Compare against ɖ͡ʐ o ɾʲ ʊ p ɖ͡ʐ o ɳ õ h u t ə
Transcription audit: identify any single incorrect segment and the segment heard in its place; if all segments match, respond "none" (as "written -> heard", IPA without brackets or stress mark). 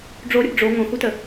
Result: ɳ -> ŋ